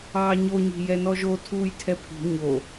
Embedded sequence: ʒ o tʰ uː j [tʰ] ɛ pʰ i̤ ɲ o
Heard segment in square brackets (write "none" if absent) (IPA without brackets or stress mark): tʰ